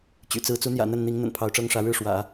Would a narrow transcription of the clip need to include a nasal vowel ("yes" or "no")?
no